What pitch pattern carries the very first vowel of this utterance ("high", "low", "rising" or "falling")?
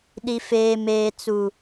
low